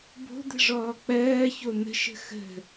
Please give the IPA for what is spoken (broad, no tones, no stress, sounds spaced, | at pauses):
b o̤ d̪ ə̤ ʐ ɔː k͡p ɜː ç o n̪ ə̤ ʃ ə̤ x ə̤